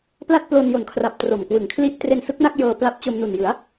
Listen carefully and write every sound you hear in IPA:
p l a˥˩ t̚ p l o˧ n j o˨˩ n kʰ r a˨˩ p̚ t r o˨˩ m k w ɯ˨˩ ŋ kʰ l i˥˩ ʔ t r e˧ n s ɯ˦˥ k̚ n a˥˩ k̚ j ɤː˧ p l a˦˥ p̚ t͡ɕ o˧ m n u˨˩ n j ɯ˩˦ a̯

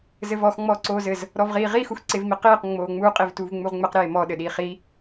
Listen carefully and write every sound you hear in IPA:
z ɘ v ɔ x ŋ͡m ɔː ǀ oː z ɘ z | ɾ ɔ v ʁ iː ʁ iː x u x ǀ e v m i q iː q ŋ͡m oː ŋ͡m uː qʼ i v t uː v ŋ͡m u ʁ ŋ͡m ɘ q ɾ eː m ɔ ɗ ɘ ɗ iː χ i

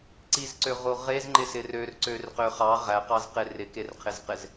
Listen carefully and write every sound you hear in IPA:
ǀ i z ǀ ø ʁ o ʁ e z ŋ͡ǃ ɪ s ɪ r ø r ǀ ø r q ø χ ɑ ʁ æ q ɑ z q e r ɪ k e r qʰ ɪ z q ɪ z

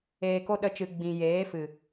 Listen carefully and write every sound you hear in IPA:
eː˨ k o˧ ɗ ə˧ t͡ʃ ɨ˨ ɡ͡b ĩ˨ j eː˨˦ f ɨ˨

